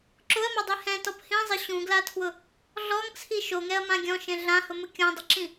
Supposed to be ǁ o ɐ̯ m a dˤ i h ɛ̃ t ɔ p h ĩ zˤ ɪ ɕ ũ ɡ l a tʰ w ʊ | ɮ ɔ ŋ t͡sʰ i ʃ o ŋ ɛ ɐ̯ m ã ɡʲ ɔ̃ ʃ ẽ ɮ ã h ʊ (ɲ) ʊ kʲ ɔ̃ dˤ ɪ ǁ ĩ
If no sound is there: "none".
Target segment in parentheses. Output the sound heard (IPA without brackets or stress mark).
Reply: m